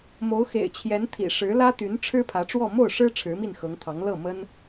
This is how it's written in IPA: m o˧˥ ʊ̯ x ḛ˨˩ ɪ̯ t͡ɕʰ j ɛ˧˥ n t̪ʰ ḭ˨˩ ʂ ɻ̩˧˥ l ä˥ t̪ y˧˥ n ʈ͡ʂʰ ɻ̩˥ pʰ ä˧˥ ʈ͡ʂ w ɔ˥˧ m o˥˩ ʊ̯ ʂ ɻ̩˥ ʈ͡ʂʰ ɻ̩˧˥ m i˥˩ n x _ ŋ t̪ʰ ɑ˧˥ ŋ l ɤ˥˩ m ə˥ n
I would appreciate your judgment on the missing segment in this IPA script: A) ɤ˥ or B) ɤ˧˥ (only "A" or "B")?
B